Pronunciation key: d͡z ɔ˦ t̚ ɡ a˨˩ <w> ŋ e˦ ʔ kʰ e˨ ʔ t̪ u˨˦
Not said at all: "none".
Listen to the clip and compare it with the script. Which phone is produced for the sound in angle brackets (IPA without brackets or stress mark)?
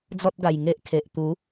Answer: j